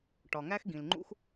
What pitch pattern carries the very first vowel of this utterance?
low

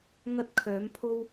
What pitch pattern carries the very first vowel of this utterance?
high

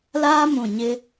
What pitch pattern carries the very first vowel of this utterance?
high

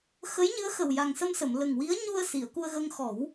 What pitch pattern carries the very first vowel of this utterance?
rising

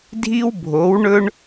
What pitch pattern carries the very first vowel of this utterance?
high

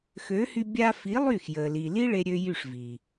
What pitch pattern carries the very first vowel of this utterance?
rising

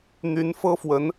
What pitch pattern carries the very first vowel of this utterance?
rising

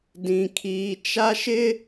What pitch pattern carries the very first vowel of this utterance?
low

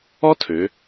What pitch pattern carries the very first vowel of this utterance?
high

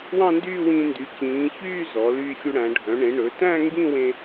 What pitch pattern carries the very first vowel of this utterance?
falling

